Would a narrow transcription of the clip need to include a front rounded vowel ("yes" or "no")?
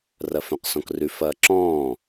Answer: yes